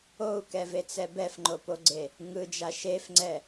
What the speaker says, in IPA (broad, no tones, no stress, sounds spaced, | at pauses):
o u̯ k ɛ v e t͡s ɛ b ɛ f ŋ͡ǃ o p o ɡ͡ǀ e | ŋ ɯ d͡ʒ a ʃ e f ŋ͡ǀ ɛ